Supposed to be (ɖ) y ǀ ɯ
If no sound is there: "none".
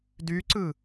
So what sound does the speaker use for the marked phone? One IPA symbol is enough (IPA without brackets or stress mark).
d